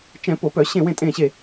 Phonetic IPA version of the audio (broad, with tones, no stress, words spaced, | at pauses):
t͡ʃɛ̃˧˩˧ po˧˩˧pœ˧˩˧ ɕẽ˧˩wẽ˧˩tʼẽː˧˩ɕe˧˩